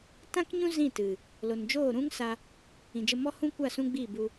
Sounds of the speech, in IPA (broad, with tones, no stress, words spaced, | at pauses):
tã˦kɲũ˦ zĩ˦˨ tɨ˨ | lo˨nd͡ʒoː˦˨ɾũ˦ŋ sa˧ | ĩ˨d͡ʒə˧mɔ˦ hũ˦kʷa˦˨ sũ˦ɡ͡bi˦˨bu˧